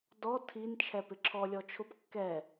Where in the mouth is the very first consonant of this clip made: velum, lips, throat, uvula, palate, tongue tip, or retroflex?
tongue tip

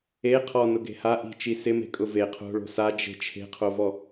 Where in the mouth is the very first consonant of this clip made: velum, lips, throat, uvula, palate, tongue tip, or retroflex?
uvula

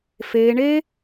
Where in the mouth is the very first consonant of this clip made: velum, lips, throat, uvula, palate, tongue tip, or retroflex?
lips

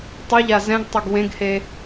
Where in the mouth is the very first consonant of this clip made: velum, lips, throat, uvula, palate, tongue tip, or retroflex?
tongue tip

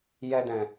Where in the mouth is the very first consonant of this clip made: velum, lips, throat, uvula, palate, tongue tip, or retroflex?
palate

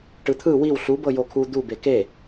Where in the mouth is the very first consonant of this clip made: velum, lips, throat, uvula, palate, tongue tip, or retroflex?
retroflex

